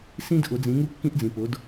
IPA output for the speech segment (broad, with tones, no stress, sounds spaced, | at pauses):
s ĩ˦ d ʔ ʊ˨˦ d͡z ĩ˨˦ ŋ u˦ kː ĩ˦ ʔ d͡z ĩ˨ p ʊ˨˦ d